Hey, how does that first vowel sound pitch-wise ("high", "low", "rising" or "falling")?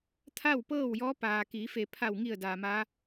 falling